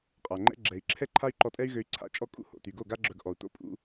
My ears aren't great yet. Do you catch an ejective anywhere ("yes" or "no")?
yes